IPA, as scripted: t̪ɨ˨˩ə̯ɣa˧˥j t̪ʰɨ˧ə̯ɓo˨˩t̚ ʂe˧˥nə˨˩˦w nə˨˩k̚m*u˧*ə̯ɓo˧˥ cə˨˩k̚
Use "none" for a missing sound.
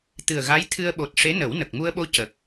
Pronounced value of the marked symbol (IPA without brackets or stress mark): u˧